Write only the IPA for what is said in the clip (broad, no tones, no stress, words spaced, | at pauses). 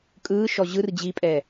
kʼɯːʃɔ ʑɯr d͡ʑipʼɛ